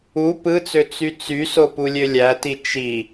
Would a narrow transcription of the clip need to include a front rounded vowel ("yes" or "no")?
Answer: yes